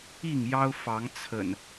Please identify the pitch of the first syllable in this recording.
falling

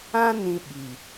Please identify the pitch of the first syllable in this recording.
high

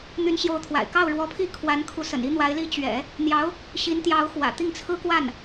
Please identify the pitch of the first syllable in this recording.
rising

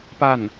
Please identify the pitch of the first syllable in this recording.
falling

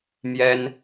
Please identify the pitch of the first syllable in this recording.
high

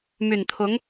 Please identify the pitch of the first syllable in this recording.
low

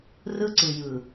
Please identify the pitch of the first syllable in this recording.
high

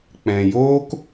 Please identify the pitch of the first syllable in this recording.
low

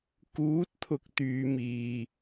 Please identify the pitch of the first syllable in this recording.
rising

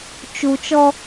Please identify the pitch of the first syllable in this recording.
low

